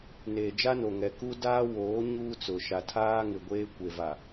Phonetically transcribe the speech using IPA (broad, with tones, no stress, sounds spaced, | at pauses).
n eː˨ d͡ʒ a˦ n o˨ ŋ ɛ˨ k u˦ d aː˦ w oː˨˦ ɲ uː˦ t͡s ʊ˨ ʃ a˨ tʰ aː˦ ŋ ɪ˨ ɡʷ eː˦ kʷ e˨ v a˨